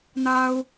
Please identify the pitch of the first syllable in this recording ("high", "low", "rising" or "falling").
high